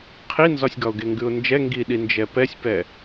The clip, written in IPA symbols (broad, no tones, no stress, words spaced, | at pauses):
qʰinzɒsʲɡɒʊ̯ ɡeŋɡʉʊ̯nd͡ʒɛ ŋɡiɗi nd͡ʒɛpɛsʲpɛ